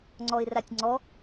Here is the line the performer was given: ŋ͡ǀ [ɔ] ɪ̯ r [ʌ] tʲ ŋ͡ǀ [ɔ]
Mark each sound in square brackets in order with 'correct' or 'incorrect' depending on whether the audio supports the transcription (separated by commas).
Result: correct, incorrect, correct